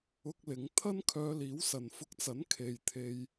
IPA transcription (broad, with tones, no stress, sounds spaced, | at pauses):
ʊ˧ k̚ l ɪ˨˧ ŋ t̪ʰ ɐ˥ n kʰ œː˧ l iː˨˥ w s ɐ˨ n f ʊ˧ k̚ t͡s ɐ˨˥ n kʰ e˨ j t̪ʰ e˧ j